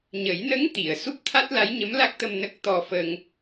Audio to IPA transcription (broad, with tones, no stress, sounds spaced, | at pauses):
ɲ ə˨˩˦ j n ə˧˥ ŋ t̪ i˨˩˨ ə̯ s u˦˥ p̚ t̪ʰ a˦˥ t̚ l a˧˥ j ɲ ə˧˥ m l a˦˥ k̚ t̪ ə˧ m n ə˦˥ k̚ t̪ ɔ˧ f ə˧ ŋ